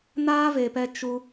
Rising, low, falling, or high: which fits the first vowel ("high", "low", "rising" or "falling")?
high